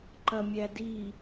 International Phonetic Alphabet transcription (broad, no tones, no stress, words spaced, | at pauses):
ǃɐmʲædi